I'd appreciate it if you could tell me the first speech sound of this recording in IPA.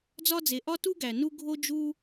d͡z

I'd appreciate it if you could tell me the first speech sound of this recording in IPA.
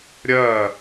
ɾʲ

